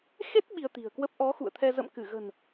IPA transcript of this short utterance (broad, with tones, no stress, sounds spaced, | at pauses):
x e˦˥ t̚ ɓ i˧ ə̯ t̪ i̤˨˩ ə̯ k w ə˦˥ p̚ ʔ ɔ˨˦ x ṵ˧˨ ə̯ t̪ʰ ɛ˧ z ə̰˧˨ m k ɨ˧˩ ɣ ə̤˨˩ n